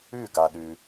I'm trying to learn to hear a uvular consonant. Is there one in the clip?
no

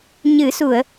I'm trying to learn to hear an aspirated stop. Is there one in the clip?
no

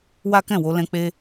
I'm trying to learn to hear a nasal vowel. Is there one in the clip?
yes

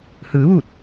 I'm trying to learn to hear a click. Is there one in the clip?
no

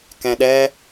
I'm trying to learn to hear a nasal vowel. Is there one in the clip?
yes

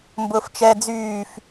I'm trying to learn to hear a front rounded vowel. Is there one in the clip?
yes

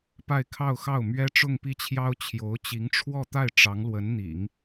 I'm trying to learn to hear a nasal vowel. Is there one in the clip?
no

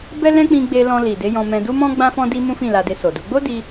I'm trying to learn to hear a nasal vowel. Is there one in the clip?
yes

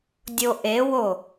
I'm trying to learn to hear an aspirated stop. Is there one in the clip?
no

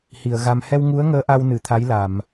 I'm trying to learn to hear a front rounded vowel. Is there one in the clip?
no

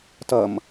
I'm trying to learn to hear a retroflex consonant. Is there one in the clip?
no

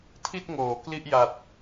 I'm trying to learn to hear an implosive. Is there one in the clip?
no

